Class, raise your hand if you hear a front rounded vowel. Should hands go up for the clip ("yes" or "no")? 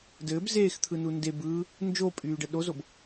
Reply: yes